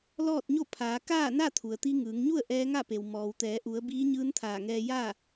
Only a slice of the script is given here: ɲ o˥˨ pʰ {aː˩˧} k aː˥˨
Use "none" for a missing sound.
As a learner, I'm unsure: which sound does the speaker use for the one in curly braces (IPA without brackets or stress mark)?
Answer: aː˩˧